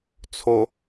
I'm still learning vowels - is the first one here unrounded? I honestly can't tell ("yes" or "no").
no